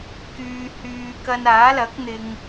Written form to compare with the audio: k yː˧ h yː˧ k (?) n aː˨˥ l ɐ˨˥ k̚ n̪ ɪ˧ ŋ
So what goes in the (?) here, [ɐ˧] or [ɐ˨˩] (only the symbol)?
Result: ɐ˧